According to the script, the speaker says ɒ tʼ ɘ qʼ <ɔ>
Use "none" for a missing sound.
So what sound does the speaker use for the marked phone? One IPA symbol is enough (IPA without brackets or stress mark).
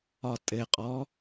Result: ɔ